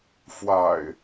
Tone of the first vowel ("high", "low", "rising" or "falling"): low